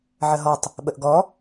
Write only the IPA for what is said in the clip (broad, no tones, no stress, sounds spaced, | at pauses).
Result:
ʕ ə ɦ ɔ tˤ | ɓ ə ʔ ɡ ɔ